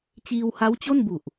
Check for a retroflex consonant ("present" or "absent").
absent